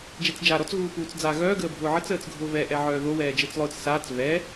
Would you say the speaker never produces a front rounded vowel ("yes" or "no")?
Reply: no